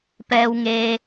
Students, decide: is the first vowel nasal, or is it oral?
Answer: oral